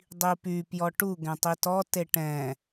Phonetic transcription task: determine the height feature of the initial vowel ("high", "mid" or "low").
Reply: high